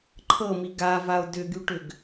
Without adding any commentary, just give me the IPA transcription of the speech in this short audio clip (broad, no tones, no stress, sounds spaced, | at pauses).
ǃʰ ɤ m i ɡ a v a o̯ d ʏ ɡ y ʈ ʏ ɡ